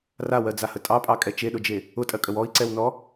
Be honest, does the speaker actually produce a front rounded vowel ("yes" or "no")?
no